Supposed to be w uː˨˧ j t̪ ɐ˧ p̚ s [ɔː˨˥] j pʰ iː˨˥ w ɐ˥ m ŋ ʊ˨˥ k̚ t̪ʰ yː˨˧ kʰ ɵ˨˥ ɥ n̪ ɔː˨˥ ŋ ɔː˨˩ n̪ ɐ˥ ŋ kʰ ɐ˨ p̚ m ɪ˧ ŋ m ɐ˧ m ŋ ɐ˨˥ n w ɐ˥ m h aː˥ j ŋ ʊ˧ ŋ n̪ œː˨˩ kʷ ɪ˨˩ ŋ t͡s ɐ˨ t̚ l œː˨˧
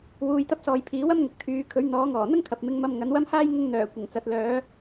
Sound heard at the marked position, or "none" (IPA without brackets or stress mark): ɔː˨